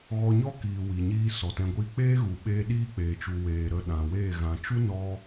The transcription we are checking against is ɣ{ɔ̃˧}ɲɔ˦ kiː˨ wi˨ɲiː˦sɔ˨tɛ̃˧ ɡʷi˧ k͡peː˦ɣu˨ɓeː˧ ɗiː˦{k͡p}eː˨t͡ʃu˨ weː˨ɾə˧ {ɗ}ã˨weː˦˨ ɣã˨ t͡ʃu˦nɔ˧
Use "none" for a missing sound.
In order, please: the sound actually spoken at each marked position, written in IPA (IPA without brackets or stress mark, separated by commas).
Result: ɔ˧, k͡p, ɗ